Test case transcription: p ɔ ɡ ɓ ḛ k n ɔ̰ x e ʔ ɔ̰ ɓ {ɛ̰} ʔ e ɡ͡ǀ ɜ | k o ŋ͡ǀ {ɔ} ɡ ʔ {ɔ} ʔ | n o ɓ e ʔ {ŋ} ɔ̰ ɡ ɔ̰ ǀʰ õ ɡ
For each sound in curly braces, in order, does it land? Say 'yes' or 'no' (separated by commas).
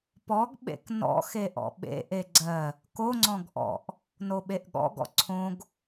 no, no, no, no